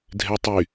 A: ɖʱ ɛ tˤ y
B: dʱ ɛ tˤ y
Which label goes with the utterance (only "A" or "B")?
B